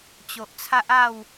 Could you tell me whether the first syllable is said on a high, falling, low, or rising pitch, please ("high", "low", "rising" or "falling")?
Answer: low